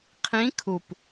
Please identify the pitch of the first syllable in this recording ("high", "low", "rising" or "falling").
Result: rising